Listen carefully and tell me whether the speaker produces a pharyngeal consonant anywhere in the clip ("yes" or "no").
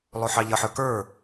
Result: yes